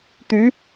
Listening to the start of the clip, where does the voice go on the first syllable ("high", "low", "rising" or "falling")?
rising